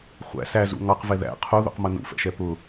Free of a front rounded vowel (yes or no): yes